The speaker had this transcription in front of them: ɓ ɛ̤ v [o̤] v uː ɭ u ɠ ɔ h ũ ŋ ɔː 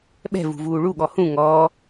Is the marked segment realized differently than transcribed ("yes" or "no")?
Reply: yes